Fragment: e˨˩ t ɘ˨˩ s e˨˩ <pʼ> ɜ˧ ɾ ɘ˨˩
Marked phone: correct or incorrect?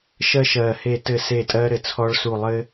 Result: incorrect